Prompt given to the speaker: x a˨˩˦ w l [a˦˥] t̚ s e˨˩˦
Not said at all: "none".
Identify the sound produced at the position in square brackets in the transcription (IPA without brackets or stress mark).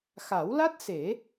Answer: a˦˥